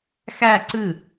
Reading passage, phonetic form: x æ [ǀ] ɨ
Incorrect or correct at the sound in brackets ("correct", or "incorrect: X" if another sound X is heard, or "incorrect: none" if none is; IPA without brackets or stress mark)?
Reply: correct